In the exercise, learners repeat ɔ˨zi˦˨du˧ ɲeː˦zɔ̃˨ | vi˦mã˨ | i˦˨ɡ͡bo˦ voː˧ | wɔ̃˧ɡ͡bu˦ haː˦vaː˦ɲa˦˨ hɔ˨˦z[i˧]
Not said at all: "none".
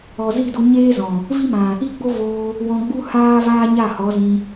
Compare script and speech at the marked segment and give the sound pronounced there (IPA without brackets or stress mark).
ĩ˧